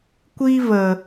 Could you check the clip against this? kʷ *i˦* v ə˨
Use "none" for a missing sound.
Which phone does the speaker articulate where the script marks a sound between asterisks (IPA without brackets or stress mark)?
i˦